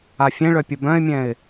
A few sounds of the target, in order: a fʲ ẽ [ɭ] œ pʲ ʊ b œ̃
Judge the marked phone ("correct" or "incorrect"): correct